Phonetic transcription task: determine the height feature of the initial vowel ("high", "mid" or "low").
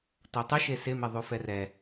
mid